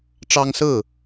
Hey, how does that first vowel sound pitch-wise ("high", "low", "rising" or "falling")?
high